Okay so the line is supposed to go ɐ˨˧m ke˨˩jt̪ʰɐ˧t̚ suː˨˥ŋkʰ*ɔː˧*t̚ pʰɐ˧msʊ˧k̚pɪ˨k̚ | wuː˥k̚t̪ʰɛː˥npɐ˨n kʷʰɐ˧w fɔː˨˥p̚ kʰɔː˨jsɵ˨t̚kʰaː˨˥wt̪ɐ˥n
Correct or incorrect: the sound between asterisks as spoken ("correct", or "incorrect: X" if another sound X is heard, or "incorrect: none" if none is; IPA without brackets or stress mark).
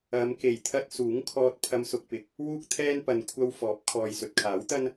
correct